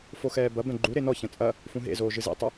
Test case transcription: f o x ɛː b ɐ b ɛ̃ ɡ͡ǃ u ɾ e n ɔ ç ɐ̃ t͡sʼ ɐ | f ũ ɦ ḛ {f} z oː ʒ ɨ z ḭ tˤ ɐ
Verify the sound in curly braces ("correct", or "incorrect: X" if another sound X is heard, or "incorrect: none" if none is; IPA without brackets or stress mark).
incorrect: none